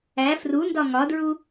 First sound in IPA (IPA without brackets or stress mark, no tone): æ